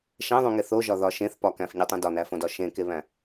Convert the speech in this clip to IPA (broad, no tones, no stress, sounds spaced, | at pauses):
ʃ æ̃ ðˤ ũ ŋ e θ o ʒ ɒ ð ɒ ʃ ẽ θ p ɒ k æ̃ f ɲ e tˤ ũ d ɒ n æ f õ d ɒ ʃ ẽ k e β æ̃